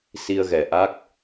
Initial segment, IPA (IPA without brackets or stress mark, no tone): s